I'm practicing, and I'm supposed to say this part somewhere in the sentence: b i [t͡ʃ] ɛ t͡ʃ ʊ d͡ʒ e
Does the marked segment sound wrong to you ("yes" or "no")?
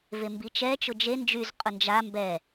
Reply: no